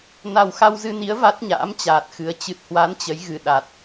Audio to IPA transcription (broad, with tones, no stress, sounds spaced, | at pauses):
n a˨˩ w x a˧ w z ɨ˧ n i˨˦ ə̯ v a˦˥ t̚ ɲ a̰ː˧˥ m t͡ɕ aː˨˩ t̚ x ɨ˨˦ ə̯ t͡ɕ ɨ˨˩ t̚ h w a˨˦ n t͡ɕ ə˨˦ j ɣ ɨ˨˩ ɗ a˨˩ t̚